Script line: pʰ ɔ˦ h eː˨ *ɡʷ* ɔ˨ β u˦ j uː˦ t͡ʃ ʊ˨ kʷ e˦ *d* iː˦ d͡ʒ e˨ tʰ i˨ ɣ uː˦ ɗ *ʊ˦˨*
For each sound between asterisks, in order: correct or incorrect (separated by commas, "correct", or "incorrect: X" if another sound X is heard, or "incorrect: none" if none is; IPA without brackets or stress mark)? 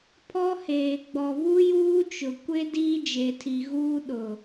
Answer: incorrect: ɡ͡b, correct, incorrect: ʊ˨